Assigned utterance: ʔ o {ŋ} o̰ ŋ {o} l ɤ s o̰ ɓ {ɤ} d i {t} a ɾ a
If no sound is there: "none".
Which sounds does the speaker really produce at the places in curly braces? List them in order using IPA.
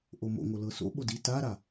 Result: m, o, o, t

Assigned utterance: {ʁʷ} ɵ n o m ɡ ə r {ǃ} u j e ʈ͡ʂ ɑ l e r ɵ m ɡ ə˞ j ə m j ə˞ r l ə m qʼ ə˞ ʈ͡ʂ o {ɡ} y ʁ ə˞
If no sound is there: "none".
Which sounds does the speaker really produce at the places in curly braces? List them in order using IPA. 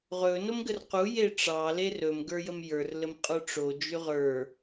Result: ʁ, q, d͡ʒ

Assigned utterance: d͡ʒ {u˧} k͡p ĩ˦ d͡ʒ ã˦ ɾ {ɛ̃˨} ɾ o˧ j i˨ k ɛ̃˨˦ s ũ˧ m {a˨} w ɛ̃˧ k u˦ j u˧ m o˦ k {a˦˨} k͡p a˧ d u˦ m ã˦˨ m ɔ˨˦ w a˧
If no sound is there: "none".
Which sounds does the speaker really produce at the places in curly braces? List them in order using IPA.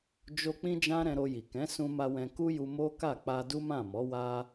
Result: o˧, ɛ̃˧, a˧, a˦˨

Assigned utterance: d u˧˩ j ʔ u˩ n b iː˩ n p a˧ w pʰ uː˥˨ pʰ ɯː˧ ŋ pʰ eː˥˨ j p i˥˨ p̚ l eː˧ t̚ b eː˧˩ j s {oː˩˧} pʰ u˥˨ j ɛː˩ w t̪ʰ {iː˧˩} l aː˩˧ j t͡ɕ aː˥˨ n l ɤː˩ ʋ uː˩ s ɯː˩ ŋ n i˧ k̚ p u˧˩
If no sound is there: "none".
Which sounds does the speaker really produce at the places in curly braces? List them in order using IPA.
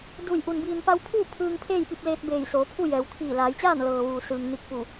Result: oː˩˧, iː˧˩

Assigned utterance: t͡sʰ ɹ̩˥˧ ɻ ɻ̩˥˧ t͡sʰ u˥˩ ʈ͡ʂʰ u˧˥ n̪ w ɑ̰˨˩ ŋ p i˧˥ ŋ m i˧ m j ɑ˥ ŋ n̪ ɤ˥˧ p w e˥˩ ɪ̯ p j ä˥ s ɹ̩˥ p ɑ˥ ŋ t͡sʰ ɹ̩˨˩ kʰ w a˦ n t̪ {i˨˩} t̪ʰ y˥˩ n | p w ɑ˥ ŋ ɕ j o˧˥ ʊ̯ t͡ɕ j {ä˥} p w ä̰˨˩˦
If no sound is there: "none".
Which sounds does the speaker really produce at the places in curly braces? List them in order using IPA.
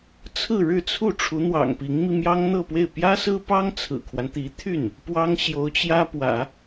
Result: i˧˥, ä˥

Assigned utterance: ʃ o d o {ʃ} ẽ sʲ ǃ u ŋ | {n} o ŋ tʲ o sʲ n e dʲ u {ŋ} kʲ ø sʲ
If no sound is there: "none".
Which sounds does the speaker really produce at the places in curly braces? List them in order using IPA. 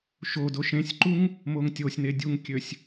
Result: ʃ, m, ŋ

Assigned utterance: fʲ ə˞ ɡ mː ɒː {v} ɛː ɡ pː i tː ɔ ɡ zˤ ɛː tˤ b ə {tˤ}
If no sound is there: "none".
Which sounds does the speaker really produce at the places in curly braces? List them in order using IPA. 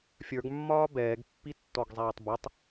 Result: b, tˤ

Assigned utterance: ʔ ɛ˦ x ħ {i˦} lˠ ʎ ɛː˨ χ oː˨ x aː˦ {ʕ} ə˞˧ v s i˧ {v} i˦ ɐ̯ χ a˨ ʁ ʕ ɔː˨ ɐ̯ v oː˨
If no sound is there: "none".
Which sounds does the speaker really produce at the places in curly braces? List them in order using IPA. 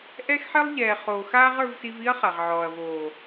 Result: i˦, ʁ, v

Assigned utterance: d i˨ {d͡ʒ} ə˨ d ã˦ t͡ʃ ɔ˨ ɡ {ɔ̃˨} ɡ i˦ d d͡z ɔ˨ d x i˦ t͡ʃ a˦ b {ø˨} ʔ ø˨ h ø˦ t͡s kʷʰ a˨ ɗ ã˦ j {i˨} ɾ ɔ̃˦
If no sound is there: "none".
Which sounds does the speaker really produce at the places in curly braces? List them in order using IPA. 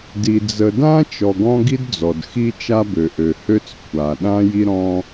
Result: d͡z, ɔ̃˦, ø˨, i˦

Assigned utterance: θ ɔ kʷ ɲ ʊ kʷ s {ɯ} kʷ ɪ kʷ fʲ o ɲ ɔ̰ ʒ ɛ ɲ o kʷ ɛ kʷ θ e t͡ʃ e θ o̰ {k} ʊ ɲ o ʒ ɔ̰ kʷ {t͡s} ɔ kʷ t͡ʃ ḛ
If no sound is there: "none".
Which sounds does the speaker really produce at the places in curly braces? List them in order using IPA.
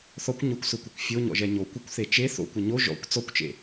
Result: ʊ, kʷ, t͡s

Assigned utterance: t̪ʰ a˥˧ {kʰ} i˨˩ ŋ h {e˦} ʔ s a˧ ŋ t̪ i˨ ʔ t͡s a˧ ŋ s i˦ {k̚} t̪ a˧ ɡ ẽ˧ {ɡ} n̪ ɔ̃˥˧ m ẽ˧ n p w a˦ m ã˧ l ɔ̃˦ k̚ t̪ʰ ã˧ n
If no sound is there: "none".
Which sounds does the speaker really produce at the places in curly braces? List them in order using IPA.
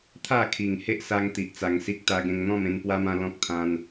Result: kʰ, e˦, k̚, ŋ

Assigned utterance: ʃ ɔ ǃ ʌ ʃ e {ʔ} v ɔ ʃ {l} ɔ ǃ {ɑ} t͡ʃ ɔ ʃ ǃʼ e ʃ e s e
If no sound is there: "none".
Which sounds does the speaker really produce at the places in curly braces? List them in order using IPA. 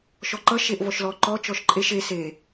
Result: ʔ, l, ɔ

